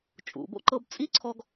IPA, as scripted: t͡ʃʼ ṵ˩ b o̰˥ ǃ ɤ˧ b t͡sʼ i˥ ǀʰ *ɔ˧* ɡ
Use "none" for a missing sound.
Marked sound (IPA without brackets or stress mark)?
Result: ɔ˧